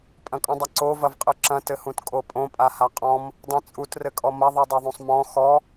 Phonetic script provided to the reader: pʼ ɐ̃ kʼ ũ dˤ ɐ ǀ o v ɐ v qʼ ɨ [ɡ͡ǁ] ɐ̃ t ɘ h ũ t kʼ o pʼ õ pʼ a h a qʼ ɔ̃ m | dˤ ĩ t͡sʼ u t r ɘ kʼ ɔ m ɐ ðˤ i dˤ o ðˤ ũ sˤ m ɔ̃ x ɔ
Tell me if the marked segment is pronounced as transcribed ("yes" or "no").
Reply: no